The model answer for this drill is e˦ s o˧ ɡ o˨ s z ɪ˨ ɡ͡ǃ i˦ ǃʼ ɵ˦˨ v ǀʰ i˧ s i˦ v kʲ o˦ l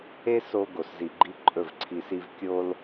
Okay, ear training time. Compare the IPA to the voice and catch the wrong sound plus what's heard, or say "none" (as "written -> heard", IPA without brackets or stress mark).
ɪ˨ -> i˨